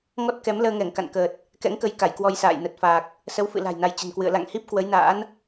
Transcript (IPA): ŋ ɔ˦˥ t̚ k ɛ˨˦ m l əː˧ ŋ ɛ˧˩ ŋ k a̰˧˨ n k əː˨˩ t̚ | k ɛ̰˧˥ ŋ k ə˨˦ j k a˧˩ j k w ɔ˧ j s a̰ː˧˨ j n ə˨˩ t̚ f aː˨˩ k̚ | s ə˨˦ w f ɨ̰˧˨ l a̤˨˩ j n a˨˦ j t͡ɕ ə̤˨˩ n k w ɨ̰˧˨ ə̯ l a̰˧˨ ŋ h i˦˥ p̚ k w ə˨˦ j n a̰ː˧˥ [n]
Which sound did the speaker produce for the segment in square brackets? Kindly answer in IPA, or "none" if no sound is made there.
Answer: n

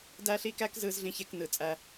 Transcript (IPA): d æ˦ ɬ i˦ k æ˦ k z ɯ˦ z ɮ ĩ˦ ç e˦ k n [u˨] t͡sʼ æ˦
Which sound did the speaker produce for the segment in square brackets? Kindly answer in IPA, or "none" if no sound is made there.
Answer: ɯ˨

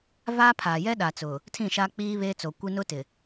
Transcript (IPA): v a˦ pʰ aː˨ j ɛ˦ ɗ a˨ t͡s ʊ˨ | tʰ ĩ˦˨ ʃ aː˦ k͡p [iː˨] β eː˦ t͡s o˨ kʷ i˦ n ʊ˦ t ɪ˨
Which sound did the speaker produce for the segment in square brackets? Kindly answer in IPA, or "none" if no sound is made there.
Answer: iː˦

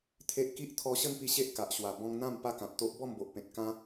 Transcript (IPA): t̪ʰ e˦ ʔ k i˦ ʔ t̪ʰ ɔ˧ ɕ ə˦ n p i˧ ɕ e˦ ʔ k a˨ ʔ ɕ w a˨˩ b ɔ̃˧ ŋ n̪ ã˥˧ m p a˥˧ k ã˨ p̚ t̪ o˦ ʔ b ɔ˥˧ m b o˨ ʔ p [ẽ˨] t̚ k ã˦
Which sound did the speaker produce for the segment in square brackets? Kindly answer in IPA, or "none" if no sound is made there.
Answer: ẽ˨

